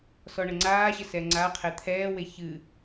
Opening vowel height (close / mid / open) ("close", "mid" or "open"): mid